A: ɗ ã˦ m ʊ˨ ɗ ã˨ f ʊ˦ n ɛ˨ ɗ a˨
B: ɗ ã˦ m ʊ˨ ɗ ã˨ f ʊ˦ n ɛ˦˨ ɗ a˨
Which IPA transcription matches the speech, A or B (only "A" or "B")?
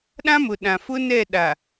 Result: B